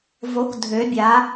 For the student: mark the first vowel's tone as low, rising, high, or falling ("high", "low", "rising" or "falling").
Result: rising